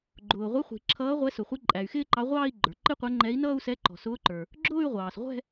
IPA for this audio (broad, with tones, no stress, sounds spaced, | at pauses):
ɡ͡ǃ ʊː˩ ʁʷ ɪ˨˥ χʷ i̤˩ ǁʰ ʌː˨˥ ʁʷ ɛ˨˥ s ʊ˩ χʷ i˨˥ ǃʼ æ˩ y̯ x ɪː˥˧ ǃ ɑ˨˥ ʁʷ ɑː˥˧ i̯ ɡ͡ǃ ə˞˩ ǃ ɪ˥˧ qʷ ɛ˨˥ ŋ͡ǃ ɛ˨˥ i̯ n ʌː˥˧ u̯ s ɛ˨˥ ǃ ɔ̤˩ s ʊː˨˥ ǃ ə˞˩ | ɡ͡ǁ ʊː˥˧ y̯ ʁʷ ɑː˩ s ʁʷ ɛ̤˥˧